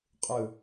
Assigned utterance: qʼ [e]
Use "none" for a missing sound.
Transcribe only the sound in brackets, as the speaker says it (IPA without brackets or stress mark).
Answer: ɨ